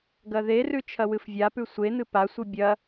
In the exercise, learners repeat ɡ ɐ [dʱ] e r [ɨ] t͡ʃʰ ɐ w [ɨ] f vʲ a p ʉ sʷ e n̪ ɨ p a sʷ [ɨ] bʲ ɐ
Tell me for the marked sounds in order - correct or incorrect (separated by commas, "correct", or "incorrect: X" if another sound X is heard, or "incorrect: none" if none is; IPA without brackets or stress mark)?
incorrect: ð, incorrect: ʉ, correct, correct